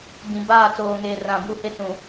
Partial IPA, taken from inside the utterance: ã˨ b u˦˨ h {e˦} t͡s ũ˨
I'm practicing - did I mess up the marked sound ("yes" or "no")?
no